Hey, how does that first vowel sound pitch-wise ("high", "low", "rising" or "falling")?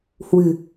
low